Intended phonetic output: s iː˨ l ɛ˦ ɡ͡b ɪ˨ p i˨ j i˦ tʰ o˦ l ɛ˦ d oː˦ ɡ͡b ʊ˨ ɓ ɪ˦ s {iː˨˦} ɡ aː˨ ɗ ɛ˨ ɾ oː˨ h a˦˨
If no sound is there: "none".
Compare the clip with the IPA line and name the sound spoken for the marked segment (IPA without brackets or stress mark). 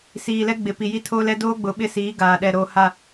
iː˨˦